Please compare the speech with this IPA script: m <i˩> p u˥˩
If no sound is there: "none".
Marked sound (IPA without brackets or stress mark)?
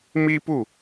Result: i˥